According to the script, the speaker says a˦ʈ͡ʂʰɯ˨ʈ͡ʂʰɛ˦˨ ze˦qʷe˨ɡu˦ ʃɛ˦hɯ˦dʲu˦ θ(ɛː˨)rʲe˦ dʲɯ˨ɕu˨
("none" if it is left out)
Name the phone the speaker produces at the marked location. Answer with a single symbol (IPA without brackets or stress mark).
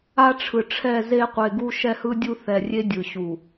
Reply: ɛ˨